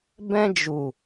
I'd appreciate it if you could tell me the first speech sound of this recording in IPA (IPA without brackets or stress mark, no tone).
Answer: b